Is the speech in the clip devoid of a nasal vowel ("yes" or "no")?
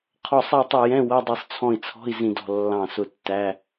no